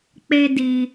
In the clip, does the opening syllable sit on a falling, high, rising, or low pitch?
high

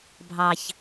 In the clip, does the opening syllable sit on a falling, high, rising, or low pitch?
low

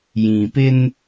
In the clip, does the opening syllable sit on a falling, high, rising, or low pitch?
low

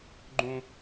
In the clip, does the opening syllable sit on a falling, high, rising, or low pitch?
low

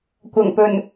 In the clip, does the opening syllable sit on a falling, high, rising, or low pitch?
low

